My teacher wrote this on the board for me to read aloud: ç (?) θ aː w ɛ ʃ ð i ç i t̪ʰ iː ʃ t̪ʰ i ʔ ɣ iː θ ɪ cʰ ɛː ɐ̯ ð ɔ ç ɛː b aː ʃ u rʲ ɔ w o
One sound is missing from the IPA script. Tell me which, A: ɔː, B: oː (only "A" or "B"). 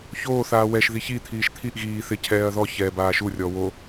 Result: B